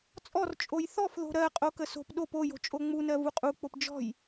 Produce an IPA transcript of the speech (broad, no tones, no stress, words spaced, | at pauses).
t͡sʼɔrt͡ʃʼoj θɔfðo̤ ɾɜ qʼokəso̤p ɗop ojo̤t͡ʃʼo ŋ͡munɜ vuqʼuk͡pop d͡ʒɔ̤j